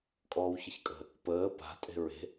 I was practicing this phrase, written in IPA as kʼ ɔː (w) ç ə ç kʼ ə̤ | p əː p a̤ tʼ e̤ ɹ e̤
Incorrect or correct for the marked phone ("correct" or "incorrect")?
correct